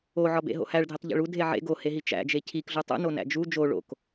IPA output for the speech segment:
oʕɒbḛ ɦo̰hæɭdʱitˤ ʎḛɭu dʱeʕḛ ɡoheɦi t͡ʃæ̰d͡ʒe cʰikɮu tˤṵnonæ̰ d͡ʒu d͡ʒo ɭo̰k

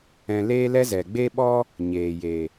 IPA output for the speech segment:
ɛ̃˧leː˦lɛ˦zɛ˨ ɡ͡be˦ɓɔ˦ | ɲeː˨je˨

